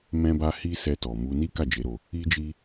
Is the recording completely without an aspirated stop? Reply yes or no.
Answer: yes